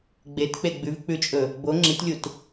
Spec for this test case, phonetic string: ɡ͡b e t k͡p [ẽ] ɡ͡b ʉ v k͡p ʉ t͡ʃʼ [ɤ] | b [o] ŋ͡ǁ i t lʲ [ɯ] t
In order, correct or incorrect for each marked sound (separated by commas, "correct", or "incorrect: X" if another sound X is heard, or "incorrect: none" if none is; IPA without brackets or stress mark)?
incorrect: e, incorrect: ɵ, correct, incorrect: u